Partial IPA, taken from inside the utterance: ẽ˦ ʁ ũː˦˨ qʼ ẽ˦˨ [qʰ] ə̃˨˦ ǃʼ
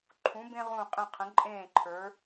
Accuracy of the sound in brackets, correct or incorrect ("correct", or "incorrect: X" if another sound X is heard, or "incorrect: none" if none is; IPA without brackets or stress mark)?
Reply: correct